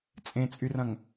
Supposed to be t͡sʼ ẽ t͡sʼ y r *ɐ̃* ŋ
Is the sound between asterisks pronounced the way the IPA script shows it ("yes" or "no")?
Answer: yes